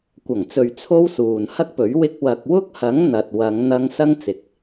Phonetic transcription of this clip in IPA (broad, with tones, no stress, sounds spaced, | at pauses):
kʷ ɐ˨˩ ŋ t͡s ɵ˨ ɥ t͡sʰ o˥ w s uː˨ n h ɐ˥ k̚ p ɵ˨˥ ɥ w ɪ˧ k̚ w ɐ˨ k̚ w ʊ˥ k̚ h ɐ˨˥ ŋ n̪ ɐ˨ t̚ w ɐ˨˧ ŋ n̪ ɐ˧ ŋ s ɐ˥ ŋ t͡s ɪ˨ k̚